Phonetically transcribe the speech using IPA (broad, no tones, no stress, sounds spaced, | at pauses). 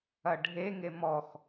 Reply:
ɐ ɖʱ e ŋ e m ɔ x